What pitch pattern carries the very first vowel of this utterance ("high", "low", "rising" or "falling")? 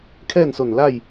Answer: falling